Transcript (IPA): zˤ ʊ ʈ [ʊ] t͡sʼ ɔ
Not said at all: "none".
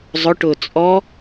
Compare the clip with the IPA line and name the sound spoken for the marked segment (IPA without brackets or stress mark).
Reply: ʊː